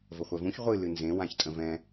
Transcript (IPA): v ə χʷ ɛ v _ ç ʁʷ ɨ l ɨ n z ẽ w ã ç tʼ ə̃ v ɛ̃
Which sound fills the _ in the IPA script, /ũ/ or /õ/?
ũ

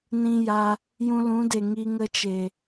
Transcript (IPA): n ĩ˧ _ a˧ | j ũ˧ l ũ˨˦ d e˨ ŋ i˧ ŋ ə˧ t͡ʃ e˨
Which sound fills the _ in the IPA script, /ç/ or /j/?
j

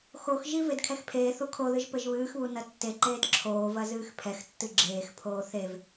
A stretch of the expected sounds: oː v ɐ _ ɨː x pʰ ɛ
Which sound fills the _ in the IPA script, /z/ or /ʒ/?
z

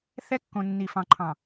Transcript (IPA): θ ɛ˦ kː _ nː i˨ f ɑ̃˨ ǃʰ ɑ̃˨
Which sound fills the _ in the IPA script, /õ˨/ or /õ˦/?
õ˨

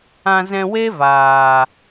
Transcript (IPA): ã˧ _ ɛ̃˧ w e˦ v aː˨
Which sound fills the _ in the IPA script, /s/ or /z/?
z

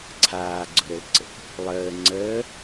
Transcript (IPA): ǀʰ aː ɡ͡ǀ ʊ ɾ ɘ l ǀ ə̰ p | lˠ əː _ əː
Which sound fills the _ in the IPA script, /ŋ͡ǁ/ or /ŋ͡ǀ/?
ŋ͡ǀ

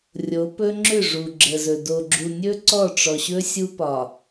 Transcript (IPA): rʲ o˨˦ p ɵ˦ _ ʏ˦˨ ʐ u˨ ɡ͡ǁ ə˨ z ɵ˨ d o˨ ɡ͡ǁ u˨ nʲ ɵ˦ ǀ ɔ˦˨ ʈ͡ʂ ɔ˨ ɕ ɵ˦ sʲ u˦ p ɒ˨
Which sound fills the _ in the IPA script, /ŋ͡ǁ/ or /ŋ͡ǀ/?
ŋ͡ǁ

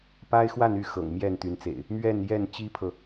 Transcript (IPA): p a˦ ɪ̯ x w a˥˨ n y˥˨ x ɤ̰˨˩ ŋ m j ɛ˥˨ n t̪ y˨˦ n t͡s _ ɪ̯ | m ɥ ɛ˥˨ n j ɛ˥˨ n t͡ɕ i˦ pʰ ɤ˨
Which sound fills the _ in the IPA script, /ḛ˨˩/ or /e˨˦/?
ḛ˨˩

